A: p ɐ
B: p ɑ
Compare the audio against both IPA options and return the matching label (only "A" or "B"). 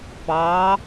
B